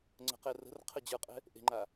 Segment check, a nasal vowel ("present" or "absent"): absent